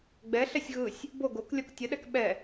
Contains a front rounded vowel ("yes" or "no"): no